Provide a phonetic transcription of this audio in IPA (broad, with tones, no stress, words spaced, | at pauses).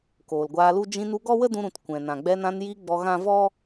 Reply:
koː˨lɡʷaː˧lu˦ d͡ʒĩ˧nu˧ ɡɔ˦wə˦dũ˧ɾũ˨t kʷɛ̃˨ nã˨ɡ͡bɛ˧nã˧n ji˧ ɡ͡bɔ˧ɣã˦ vɔ˦